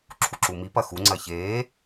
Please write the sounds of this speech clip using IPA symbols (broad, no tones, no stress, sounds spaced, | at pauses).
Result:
ǁʰ u ǁ u m i p ɐ x u ŋ͡ǀ ɐ ç eː